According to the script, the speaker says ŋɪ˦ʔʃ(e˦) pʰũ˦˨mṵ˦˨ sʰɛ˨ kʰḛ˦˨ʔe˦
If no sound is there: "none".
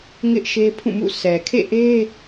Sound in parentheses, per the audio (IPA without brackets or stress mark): e˦